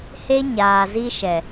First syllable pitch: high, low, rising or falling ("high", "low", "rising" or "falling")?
high